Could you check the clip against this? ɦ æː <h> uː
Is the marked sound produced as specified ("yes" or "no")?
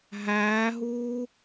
no